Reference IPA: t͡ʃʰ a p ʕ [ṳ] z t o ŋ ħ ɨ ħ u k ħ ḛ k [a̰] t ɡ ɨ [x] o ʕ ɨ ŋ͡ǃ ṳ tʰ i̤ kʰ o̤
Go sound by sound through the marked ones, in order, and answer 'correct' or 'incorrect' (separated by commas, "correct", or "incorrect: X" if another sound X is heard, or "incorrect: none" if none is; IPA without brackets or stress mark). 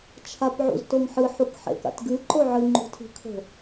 incorrect: ṵ, correct, incorrect: ǃ